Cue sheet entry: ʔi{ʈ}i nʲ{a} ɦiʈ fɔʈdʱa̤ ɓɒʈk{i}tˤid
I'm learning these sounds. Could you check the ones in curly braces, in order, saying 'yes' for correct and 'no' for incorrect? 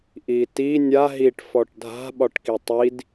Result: no, yes, yes

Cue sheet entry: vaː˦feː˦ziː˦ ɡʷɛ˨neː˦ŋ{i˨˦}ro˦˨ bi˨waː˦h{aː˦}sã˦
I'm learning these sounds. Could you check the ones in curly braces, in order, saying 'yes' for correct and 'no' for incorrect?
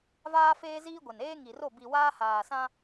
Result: no, no

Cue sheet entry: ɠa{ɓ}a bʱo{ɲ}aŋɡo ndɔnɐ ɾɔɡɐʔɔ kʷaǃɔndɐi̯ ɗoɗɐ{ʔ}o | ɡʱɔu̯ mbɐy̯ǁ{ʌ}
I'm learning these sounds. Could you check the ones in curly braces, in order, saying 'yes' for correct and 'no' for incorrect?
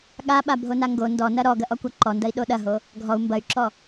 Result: yes, no, no, no

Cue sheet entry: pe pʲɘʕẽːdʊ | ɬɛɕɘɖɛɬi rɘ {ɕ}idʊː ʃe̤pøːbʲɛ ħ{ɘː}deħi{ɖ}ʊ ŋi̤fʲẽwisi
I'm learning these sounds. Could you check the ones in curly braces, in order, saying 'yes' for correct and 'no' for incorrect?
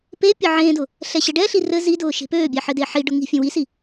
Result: no, no, yes

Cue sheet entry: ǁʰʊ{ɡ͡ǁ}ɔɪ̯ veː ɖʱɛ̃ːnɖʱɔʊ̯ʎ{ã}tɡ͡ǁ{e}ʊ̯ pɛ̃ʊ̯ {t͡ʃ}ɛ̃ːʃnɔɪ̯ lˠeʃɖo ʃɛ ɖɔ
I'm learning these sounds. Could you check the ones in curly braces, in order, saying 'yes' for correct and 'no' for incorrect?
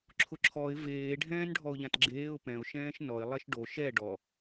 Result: no, yes, no, no

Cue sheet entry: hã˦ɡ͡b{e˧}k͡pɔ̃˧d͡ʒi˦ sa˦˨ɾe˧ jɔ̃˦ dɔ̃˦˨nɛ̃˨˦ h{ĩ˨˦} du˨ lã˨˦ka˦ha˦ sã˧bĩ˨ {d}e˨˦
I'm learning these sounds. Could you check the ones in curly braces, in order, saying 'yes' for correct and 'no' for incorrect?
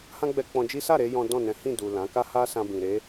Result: no, no, no

